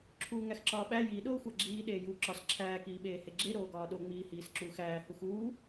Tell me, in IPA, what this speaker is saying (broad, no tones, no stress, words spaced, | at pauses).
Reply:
ǁʰuːŋæxǁɒːɓæ ji ɗoːxʷæɡ͡ǁiː ɗeːjuːǁɒs ǁʰæːk iːɓeːheɡ͡ǁe ɾoːɡɒːɗo ŋ͡miːhiːsǁuːxæː huxuː